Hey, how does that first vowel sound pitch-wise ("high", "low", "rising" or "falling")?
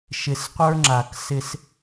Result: low